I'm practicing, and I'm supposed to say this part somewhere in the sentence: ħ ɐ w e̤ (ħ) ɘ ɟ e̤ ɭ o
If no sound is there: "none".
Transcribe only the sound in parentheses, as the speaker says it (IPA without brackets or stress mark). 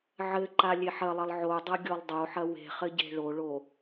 χ